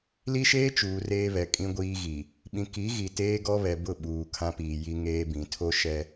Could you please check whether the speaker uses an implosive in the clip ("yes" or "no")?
yes